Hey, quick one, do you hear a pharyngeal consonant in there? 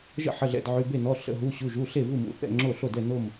yes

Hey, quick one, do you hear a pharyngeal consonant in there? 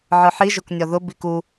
yes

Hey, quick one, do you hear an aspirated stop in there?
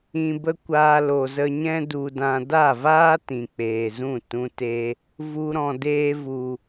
no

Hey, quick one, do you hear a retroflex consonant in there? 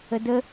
no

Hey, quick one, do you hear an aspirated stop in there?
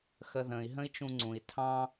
yes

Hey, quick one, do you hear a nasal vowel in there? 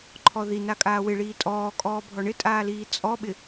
no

